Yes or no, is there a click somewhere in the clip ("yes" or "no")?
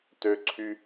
yes